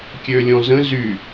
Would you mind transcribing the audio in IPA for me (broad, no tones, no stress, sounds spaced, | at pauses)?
kʲ ø lʲ ɔ̃ z ə̃ z y